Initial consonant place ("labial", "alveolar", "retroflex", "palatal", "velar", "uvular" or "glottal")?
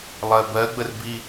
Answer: alveolar